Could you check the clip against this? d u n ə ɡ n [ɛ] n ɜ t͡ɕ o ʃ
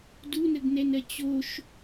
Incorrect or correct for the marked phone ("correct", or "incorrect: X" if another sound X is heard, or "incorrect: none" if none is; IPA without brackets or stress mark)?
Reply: correct